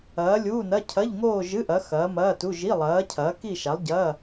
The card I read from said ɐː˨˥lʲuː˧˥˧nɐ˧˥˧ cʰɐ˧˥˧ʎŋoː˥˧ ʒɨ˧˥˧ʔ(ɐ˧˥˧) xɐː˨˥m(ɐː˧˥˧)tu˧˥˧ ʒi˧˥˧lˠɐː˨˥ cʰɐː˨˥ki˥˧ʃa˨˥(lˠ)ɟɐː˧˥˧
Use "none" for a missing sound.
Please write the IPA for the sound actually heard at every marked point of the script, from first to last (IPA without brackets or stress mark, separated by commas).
ɐ˨˥, ɐː˧˥˧, lˠ